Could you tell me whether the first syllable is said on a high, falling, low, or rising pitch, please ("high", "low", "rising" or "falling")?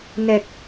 low